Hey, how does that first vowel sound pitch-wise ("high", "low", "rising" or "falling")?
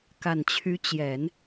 low